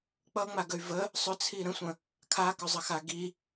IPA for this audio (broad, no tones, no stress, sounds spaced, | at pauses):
k͡p ʌ ŋ͡m a ɡ ə y̯ v ə | sˤ ʏ t͡sʰ i ɾ ə̃ sʷ ə̃ | kʰ a k ʏ zˤ ə x a ɡ i